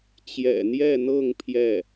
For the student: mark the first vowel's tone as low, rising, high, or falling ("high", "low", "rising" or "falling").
low